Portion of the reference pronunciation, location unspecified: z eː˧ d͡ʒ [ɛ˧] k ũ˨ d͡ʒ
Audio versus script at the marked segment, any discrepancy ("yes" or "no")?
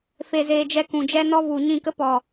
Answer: no